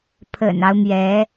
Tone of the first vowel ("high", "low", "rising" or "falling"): low